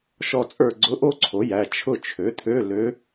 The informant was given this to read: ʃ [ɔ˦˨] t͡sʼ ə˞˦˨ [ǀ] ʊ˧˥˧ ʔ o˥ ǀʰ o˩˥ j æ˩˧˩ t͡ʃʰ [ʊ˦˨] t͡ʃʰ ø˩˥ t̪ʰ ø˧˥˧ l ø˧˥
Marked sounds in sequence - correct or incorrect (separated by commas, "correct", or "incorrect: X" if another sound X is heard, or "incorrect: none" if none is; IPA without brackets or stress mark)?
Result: correct, incorrect: ɡ͡ǀ, correct